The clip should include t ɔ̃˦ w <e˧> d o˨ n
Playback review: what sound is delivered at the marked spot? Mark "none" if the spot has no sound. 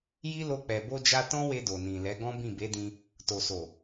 e˧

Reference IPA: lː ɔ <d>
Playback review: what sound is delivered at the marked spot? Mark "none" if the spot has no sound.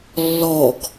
ɡ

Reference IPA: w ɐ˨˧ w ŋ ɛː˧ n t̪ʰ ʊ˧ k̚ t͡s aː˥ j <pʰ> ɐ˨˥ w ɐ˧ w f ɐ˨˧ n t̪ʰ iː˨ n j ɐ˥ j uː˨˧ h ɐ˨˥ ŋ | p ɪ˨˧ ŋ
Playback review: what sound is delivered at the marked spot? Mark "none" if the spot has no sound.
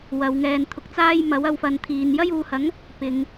m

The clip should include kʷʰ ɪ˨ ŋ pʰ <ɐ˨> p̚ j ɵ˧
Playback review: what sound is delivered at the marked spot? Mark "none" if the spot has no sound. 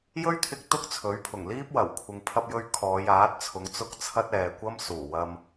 ɐ˧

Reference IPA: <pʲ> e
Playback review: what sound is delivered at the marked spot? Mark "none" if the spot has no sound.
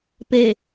p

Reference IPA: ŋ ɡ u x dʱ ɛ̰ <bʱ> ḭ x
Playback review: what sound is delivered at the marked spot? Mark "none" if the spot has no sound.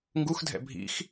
bʱ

